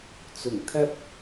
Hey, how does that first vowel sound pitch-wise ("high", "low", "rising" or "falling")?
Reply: low